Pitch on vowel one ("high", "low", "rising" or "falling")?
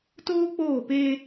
high